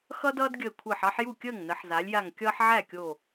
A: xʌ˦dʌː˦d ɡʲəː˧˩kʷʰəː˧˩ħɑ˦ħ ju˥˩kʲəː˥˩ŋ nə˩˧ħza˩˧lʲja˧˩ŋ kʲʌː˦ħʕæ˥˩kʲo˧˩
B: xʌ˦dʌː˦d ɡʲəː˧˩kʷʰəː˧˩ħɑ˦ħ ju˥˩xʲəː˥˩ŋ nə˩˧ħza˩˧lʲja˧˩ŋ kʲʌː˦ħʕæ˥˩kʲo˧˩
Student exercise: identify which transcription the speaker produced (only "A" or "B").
A